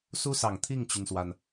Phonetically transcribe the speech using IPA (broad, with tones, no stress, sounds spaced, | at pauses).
s u˥ s ɑ˨˩ ŋ t̪ʰ i˥˩ ŋ t͡ɕ y˩ n s w a˩ n